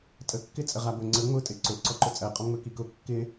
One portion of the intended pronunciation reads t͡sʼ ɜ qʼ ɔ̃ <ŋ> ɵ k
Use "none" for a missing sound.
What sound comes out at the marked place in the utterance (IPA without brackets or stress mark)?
ŋ͡m